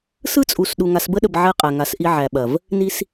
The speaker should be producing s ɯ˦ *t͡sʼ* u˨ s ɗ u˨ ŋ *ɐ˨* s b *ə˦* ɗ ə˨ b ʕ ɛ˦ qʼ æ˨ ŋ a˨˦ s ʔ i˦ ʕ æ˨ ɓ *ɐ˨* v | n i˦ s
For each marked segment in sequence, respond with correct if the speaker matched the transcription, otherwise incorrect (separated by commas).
correct, incorrect, correct, correct